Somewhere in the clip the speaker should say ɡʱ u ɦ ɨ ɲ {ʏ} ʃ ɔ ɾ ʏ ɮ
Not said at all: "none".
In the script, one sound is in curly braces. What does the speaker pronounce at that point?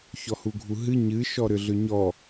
ɨ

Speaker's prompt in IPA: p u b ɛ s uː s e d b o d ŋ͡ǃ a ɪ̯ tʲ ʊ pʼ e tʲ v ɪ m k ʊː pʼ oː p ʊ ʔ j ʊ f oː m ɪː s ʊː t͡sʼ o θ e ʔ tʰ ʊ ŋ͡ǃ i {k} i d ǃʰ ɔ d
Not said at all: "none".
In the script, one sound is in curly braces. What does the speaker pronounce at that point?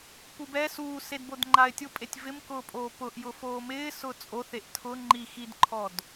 x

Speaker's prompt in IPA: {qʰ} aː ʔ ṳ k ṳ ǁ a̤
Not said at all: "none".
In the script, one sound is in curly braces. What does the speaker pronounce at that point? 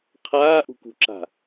qʰ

